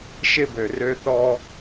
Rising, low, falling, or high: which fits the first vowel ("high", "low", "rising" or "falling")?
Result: high